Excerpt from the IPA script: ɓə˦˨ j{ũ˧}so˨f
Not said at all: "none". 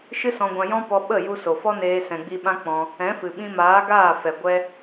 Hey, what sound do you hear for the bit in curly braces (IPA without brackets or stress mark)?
u˧